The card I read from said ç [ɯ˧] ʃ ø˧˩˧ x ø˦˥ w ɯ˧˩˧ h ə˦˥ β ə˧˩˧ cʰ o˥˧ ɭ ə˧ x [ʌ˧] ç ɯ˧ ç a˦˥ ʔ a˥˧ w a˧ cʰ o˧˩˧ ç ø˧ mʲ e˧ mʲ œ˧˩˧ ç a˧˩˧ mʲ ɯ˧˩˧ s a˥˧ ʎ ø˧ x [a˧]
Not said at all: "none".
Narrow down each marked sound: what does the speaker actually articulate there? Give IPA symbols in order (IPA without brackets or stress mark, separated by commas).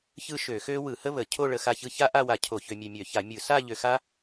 ɯ˥˧, a˧, a˦˥